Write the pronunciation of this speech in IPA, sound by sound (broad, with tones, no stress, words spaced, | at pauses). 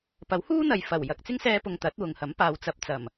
pɐ˨˥whuː˥n̪ɐ˨j fɐ˨˩w jɐ˨k̚t͡sɪ˥ŋsɛː˧pʊ˨ŋ t̪ɐ˨˥t̚wʊ˨ŋhɐ˨˥m paː˨wt͡sɐ˨˥p̚ t͡sɐ˨˩m